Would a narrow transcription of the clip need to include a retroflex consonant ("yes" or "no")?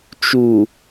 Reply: no